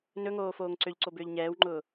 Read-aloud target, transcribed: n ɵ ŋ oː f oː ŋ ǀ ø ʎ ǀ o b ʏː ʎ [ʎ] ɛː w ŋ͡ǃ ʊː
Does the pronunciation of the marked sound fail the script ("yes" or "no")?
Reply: yes